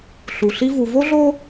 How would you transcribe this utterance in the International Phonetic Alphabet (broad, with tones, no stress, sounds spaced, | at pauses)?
ɬ u˨ ɬ i˦ v u˨ v o˦ ɮ o˦